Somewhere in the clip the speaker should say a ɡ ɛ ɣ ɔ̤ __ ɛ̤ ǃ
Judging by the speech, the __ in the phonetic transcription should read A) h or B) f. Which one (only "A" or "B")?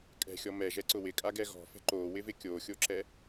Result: B